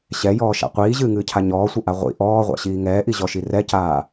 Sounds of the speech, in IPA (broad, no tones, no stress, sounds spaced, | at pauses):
ɕ ɛ j ɔː ʃ a̰ qʷ iː ʑ ɨː ŋ ɨː cʰ a ɲ ɔː sʷ ɘ ʔ a ʁʷ ḭ ʔ ɔː ʁʷ a̰ ɕ iː ŋ ɛː ʔ i ʑ ɔ ʃ i r ɛ c aː